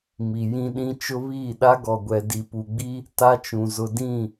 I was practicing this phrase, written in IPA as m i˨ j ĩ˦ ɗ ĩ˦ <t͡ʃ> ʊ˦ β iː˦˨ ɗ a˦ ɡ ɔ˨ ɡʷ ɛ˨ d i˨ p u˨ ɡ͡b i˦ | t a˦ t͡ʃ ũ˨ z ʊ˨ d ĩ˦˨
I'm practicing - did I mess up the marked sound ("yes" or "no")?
no